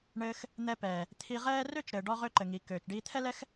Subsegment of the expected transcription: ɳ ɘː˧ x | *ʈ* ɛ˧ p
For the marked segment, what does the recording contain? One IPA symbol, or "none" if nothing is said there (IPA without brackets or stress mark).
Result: n̪